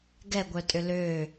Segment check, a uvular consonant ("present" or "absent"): absent